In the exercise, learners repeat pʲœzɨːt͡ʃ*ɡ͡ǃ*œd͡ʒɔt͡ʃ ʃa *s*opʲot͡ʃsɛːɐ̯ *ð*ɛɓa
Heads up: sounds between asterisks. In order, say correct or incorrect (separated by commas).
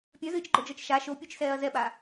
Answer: correct, incorrect, incorrect